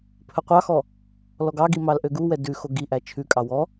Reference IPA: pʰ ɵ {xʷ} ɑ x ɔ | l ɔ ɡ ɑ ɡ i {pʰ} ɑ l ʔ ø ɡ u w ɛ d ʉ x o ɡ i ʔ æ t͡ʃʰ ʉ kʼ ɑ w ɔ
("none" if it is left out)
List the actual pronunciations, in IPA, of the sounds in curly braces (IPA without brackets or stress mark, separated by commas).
qʷ, m